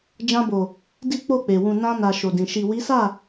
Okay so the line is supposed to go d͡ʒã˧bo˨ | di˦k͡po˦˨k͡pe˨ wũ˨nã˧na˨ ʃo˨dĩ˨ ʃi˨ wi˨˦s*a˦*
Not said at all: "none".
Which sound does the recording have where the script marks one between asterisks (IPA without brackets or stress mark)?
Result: a˦˨